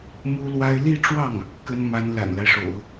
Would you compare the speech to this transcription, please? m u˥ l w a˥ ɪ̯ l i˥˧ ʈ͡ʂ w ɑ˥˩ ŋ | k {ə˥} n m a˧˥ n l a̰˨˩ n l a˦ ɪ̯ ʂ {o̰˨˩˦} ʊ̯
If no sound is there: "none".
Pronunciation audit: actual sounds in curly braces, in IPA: ə˥, o̰˨˩˦

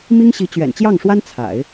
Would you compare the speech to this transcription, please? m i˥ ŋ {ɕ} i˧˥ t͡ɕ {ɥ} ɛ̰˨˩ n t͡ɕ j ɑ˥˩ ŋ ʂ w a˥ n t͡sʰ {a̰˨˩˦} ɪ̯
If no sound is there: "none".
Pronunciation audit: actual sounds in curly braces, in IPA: ɕ, ɥ, a̰˨˩˦

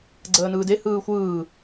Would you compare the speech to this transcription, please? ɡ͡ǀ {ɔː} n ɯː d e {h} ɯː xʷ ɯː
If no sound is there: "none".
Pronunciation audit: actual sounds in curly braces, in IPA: əː, h

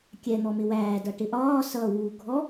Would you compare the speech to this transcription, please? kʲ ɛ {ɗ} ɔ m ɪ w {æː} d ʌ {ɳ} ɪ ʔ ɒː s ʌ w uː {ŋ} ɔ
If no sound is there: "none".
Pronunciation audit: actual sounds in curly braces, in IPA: n̪, æː, ʈ, ɡʱ

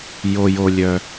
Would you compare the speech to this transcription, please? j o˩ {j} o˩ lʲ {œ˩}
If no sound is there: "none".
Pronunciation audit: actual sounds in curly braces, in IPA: j, œ˩

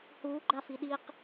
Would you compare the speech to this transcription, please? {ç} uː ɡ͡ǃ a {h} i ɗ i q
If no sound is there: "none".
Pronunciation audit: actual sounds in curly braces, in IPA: h, f

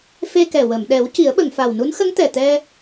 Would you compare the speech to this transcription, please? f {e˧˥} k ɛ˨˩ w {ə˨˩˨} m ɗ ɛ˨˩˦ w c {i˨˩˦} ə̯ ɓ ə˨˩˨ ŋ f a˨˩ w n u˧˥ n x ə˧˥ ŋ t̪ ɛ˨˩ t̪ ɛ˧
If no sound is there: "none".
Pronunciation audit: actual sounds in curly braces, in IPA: e˧, ə˨˩˨, i˨˩˦

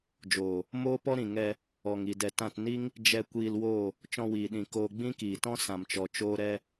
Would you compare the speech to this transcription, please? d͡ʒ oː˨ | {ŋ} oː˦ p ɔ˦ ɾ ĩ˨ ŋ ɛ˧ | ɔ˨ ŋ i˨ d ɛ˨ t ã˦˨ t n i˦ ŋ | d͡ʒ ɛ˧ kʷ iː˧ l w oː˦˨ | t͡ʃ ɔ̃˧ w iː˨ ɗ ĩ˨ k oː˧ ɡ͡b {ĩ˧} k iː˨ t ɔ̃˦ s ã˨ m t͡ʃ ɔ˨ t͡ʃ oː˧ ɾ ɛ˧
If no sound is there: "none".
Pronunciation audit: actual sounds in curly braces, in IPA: m, ĩ˦

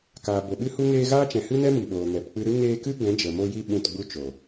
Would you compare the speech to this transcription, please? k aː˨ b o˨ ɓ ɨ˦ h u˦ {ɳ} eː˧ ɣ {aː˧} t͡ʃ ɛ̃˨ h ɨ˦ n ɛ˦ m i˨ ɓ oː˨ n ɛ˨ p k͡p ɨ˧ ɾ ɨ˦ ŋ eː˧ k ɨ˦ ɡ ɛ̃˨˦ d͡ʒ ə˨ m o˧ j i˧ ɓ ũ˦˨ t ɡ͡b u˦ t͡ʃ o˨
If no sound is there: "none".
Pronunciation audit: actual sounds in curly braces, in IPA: ŋ, aː˦

